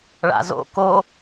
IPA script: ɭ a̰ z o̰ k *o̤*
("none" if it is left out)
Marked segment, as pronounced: o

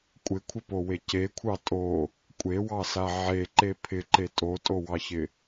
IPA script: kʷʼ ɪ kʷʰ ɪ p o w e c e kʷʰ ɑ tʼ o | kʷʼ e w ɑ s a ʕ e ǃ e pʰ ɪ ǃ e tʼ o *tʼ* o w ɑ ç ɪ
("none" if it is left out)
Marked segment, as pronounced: tʼ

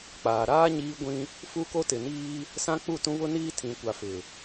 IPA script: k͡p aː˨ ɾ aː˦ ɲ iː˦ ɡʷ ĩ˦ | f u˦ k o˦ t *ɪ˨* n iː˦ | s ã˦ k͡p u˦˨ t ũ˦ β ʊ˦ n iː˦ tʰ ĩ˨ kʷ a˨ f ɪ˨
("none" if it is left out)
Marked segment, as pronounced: ɪ˨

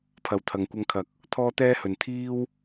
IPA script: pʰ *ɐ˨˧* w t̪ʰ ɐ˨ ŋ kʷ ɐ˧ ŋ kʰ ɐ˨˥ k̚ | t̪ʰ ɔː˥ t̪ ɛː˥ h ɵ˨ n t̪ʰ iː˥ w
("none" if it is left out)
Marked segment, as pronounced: ɐ˨˧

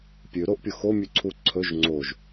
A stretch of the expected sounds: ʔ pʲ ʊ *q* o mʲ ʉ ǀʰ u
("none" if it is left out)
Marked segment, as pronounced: x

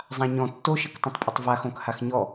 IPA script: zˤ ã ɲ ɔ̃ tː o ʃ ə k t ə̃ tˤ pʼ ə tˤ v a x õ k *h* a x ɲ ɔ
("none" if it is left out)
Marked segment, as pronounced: h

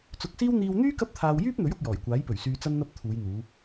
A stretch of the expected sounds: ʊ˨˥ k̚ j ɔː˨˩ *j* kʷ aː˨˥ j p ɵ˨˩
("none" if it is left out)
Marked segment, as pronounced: j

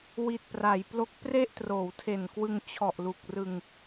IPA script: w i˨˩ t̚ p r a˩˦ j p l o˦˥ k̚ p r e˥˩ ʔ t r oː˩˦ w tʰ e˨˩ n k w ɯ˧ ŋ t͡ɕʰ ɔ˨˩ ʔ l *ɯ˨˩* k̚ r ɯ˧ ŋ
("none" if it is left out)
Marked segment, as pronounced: u˨˩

